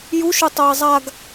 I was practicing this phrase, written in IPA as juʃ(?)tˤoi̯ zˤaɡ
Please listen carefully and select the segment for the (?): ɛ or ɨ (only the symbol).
ɨ